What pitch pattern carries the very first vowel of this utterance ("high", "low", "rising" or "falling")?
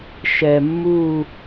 low